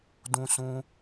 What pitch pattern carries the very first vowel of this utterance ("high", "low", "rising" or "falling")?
high